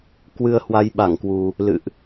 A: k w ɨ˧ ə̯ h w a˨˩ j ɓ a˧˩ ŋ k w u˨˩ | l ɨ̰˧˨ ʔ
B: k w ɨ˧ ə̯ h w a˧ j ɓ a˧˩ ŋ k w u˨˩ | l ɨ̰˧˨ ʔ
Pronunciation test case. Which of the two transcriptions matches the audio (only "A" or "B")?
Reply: B